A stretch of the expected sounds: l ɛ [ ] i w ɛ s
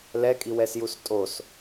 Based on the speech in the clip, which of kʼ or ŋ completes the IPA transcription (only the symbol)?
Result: kʼ